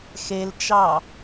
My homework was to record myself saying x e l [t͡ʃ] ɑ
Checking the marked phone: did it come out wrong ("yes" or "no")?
no